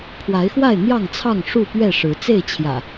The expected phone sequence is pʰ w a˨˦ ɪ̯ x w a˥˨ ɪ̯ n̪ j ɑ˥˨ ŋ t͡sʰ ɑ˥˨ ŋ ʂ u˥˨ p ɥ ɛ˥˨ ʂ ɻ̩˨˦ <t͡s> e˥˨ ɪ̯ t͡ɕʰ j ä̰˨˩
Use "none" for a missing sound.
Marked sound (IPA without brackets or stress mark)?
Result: t͡s